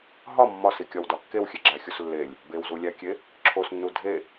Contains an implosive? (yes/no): no